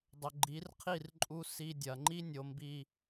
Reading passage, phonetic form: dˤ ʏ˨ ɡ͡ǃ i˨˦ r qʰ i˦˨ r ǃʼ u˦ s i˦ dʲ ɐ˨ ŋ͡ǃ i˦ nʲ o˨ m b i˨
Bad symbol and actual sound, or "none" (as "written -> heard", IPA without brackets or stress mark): none